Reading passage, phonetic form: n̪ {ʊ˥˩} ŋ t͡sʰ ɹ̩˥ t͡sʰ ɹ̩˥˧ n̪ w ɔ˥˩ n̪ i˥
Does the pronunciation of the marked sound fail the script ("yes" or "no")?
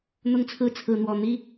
yes